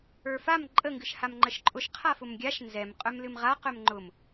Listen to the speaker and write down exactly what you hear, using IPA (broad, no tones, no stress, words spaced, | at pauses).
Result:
ə˞fam ǃʼə ŋɡɨʃhamŋ͡ǃəʃǃʼʊʃ qʰafʊmɡʲaʃ nzɛm qʼœmlɨmʁa qœmŋ͡ǃʊm